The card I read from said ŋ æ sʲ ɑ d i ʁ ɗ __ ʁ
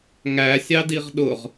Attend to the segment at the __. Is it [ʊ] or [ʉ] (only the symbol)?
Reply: ʊ